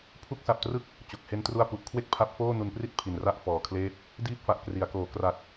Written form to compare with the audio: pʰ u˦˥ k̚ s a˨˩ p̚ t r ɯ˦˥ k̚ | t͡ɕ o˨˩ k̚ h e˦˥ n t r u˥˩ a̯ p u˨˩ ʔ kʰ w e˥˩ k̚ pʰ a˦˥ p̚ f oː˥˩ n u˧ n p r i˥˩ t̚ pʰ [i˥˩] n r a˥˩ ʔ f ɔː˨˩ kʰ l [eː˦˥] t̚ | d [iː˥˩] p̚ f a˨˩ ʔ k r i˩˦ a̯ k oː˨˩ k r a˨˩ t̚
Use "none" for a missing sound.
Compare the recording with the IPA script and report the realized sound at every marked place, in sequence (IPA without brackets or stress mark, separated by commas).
i˨˩, eː˦˥, iː˥˩